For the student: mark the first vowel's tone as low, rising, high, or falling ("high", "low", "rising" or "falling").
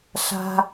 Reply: high